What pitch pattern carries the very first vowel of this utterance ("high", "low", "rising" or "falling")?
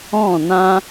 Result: falling